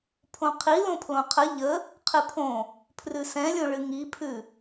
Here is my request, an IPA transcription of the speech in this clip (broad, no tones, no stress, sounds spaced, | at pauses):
pʰ õ qʰ i l õ pʰ l õ qʰ ə ʎ ə | qʰ ɨ pʰ õ | pʰ r ʉ s ɛ̃ lʲ õ ɭ ɨ ŋ i pʰ ʉ